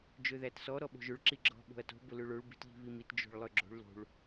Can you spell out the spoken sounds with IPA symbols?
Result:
d͡ʒ ø ð æ t s ɔ ɾ ɔ ɓ o̤ ʒ ɵ ɭ ǁ i ɡ͡ǁ ɔ̤ ɓ o̤ ɐ̯ t o̤ b ʊ l ø ɭ o ɭ b i̤ t ʎ i̤ β i m i t d͡ʒ o̤ ɭ lˠ ø ɡ͡ǁ o̤ ɭ l o̤ ɭ

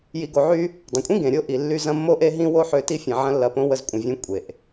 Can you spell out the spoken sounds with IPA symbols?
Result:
j i˧ ɡ o˧ ʕ y˦ | dˤ ə̃˨ kʷʼ ĩ˦ ɡ ẽ˨ ɾʲ o˦ ʔ i˨ lː y˧ z ɐ̃˧ mː o˦ ʔ e˦ ɦ ĩ˦ w o˦ ħ ø˧ t i˦ fʲ ɐ̃˨ ʕ ɐ̃˦ lː ɐ˧ p õ˦ w ə˦ z kʷʼ ə̃˧ vʲ ẽ˦ kʷʼ e˨ ʔ

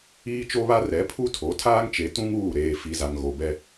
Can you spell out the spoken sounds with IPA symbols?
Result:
iː˦ t͡ʃ o˦ β a˦ r ɛ˨˦ pʰ u˦ tʰ o˨˦ tʰ aː˦ ŋ t͡ʃ e˨˦ t ũ˦ ŋ uː˦˨ ɾ eː˨ f i˨ z a˨ ŋ ɣ o˨ b ɛ˦

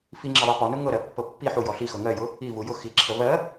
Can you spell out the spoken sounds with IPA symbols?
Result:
f i ŋ͡ǁ ə ðˤ ɜ p ɔ n ʊ ŋ ɤ ɾ ɜ pː ɤ pː i ħ u j ɔ ɬ i x ɤ ŋ ɜ j ʊ | i v u j ʊ x i ǁʰ ə v ɜ

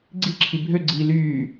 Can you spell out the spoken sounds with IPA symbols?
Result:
ɡ͡ǀ i ǁʰ i bʱ ø ɡ͡ǀ iː l yː

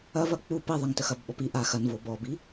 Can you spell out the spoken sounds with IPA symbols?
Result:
ɐ v ɐ k͡p u p i ðˤ ɐ ŋ t ə x ɐ b ɓ ɔ p i ʔ a x ɐ n v o b ɔ b i

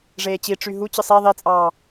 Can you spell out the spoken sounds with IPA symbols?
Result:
ʐ eː t͡ɕ i ʈ͡ʂ y ɦ u t͡ɕ ɯ sˤ e ðˤ i t͡sʼ ɑː

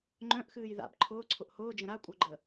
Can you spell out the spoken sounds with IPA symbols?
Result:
ŋ͡ǃ œ̃ ʔ x ɨː j ð a̰ b ǃʰ ʊː ǀʰ ʊ ʔ h ʊː d͡ʒ ə̃ ɾ a kʷʼ œ ɡ͡ǃ ə

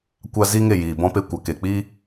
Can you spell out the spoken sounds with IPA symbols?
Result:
kʷ a˧ z iː˦ ŋ e˦˨ j iː˨ b ɔ̃˧ p e˧ kʷ a˨ k e˨ k͡p iː˦

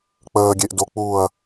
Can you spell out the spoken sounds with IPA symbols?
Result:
k͡p əː ɡʲ e ʔ d o k͡p uː ɐ̯

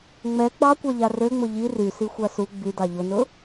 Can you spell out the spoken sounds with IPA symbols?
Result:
ŋ͡m ɛ ɡ͡b ɑ kʷ ɑ ʎ a r ø ŋ͡m ʊ ʎ i r y s i xʷ a s u ɡ͡b y d ɑ ʎ ʊ n ʊ

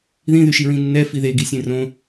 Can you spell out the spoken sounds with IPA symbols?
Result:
ð ĩ ð y ʃ i ɹ ĩ nː ɛ f i ð e ɡ i sʲ ẽ r õ

